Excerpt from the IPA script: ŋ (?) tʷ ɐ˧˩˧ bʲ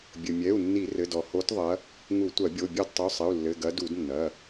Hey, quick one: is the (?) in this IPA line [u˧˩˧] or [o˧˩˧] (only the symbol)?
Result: u˧˩˧